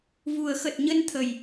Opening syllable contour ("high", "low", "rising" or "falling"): low